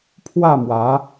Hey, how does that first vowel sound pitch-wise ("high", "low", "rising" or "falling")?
falling